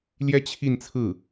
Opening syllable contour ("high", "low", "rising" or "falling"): high